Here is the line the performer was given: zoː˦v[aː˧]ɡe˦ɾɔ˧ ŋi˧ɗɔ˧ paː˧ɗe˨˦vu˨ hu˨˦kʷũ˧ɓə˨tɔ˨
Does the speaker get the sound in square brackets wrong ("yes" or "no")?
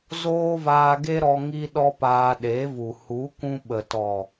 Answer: no